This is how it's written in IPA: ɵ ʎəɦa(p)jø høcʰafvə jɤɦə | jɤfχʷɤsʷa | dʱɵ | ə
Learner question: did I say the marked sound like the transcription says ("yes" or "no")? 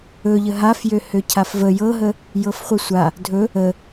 no